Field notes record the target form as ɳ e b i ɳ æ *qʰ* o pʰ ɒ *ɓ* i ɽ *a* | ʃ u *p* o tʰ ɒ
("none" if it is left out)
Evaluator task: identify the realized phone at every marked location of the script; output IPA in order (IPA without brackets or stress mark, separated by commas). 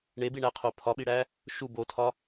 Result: qʰ, ɓ, æ, b